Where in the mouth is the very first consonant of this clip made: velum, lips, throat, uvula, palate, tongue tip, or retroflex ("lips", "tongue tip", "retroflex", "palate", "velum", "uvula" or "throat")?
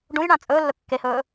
retroflex